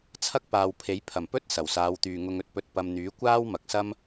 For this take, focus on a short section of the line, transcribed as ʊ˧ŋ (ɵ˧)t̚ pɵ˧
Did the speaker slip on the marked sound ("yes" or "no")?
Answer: no